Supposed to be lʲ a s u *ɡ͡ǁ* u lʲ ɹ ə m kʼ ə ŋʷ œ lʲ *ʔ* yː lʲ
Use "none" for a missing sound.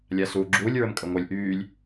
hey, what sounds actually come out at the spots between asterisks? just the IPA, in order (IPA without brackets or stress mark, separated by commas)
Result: ɡ͡ǁ, ʔ